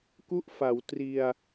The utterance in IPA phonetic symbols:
k u˥˩ ʔ f a˩˦ w t r i˧ a̯

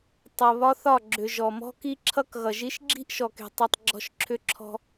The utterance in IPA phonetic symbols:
tˤ ʌ˨ β ɒ˦ θ ɒ˦˨ ɡ͡ǁ ʏ˨ ʒ ɔ˨ m ɔ̤˦ k i˦ ǁʰ ʌ˦ k ɣ ʌ˨ ʒ i˦ ʃ ɡ͡ǁ i̤˦ ʔ ʃ ɔ˨ k e̤˨ tˤ i˨ tˤ ɡ͡ǁ ɔ̤˦˨ ʃ ǁʰ ʏ˦ ǁʰ ɔ̤˦

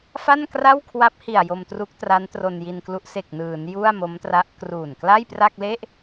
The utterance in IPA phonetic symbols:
f a˥˩ n k r a˥˩ w kʰ w a˦˥ p̚ h i˨˩ a̯ j o˧ m t r u˦˥ k̚ t r a˦˥ n t r o˧ n j i˧ n k l u˦˥ ʔ s e˨˩ k̚ n ɯː˩˦ n j u˥˩ a̯ m o˦˥ m t r a˦˥ ʔ k r uː˨˩ n k l a˥˩ j p r a˥˩ k̚ l e˥˩ ʔ

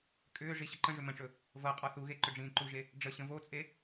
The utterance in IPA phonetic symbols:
kʼ ʏː ʐ i ɕ ə ǃ ə̃ ʐ ʏ m ə̃ ʈ͡ʂ ɵ | v ɤ qʼ ɔ θ u ɣ e ǃ ʏ ɖ͡ʐ ĩː ǃ u ʒ e | ɖ͡ʐ ə ɕ ə̃ v o t͡sʼ e

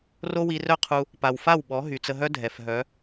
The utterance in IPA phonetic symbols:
r o˦ w i˧ r œ˦ qʰ u˧ | p a˨ w f a˦˨ w ɓ ɔ˨˦ ɦ y˨ t͡s ə˧ ɦ œ˦ dʱ ɛ˨ f ɦ œ˨˦

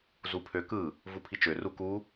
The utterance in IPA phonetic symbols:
z u pʰ ø k ɯ | v u pʰ i t͡ʃ ø r u k u

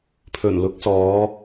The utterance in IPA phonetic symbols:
pʰ ɵ˨˩ n l ʊ˨˥ k̚ s ɔː˨˧

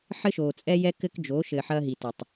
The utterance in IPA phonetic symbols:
ħ ɘ˦ ʃ oː˨ t͡sʼ ɛ˦ j ɛ˦ k ɘ˦ k d͡ʒ o˨˦ ʃ ɘ˨ ħ ɐː˦ ɦ i˨ t ɐ˨ tˤ

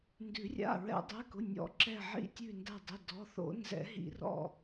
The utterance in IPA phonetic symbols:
n d ʉ˨˩˦ rʲ a̰˩˧˩ ɹ ɛ̰˨˩˦ dˤ ɛ˩˧˩ k ʊ˩˧˩ nʲ ɔ̰˨˩˦ ǁ ɛ˧˩ ʕ ḭ˧˩ tʲ ʉ˧˩ n d a˧˩ dˤ i˩˧˩ d ɔ˩˧˩ θ o̰˨˩˦ n z ɛ̰˨˩˦ ɦ ḭ˨˩˦ r ɔ̰˧˩

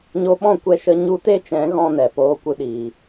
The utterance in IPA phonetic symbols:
ɲ o˧ ɓ ɔ̃˦˨ kʷ ɛ˧ ʃ ə˧ ɲ u˦ t e˦ t͡ʃ ɛ̃˨˦ ɣ ɔ̃˦ n ɛ˨ p oː˧ kʷ ɨ˧ ɗ iː˨

